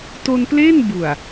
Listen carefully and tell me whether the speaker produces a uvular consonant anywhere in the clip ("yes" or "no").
no